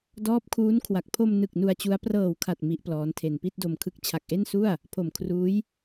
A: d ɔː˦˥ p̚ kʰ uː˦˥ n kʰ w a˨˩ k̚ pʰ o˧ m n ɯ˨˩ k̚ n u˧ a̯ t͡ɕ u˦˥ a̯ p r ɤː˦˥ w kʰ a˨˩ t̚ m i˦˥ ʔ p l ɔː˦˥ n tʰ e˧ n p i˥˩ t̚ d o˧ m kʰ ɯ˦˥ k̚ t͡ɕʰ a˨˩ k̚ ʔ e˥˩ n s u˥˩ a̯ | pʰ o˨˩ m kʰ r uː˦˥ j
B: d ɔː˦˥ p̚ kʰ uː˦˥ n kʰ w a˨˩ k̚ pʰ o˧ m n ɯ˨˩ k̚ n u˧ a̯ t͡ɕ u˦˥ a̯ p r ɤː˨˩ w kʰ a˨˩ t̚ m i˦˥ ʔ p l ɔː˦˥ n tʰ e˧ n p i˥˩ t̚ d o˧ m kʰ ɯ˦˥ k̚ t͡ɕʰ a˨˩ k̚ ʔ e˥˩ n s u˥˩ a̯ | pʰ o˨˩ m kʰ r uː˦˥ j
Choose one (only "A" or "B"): B